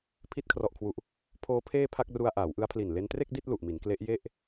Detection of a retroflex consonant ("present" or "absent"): absent